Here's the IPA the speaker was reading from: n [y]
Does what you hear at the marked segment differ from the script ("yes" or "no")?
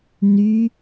no